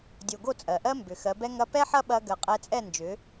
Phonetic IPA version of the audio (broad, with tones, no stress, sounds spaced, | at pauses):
dʲ o˨ ɡ o˦˨ t͡sʼ ɜ˨ ʔ ɜ˦ m b ʏ˨ x ɜ˨˦ b ɛ˦ ŋ ɐ˦ p ɛ˦ ħ ɐ˦ ɓ ɐ˧ ɡ ɜ˨ qʼ ɛ˧ t͡sʼ ɛ˦˨ n d͡ʒ ʏ˨˦